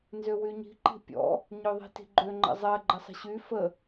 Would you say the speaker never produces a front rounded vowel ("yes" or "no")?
no